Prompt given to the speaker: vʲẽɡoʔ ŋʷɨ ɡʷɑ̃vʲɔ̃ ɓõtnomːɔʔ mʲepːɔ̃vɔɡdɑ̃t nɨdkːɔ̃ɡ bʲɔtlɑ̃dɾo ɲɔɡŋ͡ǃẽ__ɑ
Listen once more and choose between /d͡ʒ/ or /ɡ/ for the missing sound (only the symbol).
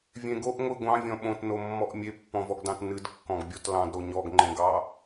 ɡ